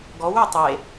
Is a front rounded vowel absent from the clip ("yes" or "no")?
no